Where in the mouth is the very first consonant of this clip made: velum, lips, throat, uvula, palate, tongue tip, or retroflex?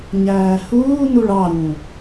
palate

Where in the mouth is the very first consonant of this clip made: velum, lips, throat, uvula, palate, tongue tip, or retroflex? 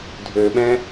tongue tip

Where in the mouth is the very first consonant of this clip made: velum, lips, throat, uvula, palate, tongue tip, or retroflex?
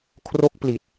velum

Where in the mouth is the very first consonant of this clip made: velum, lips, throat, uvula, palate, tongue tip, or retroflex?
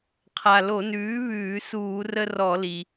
uvula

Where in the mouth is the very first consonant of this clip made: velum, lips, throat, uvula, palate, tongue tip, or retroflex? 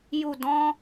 palate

